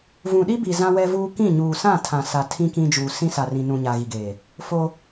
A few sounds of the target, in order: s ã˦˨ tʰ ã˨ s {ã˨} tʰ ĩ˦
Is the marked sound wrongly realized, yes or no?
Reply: yes